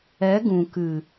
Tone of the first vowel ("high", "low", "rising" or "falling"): rising